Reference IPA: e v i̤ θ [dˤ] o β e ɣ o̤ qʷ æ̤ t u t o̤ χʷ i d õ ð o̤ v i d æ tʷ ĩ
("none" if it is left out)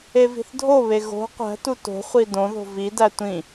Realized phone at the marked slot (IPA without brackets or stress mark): dʱ